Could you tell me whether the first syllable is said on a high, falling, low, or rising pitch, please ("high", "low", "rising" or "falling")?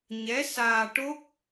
rising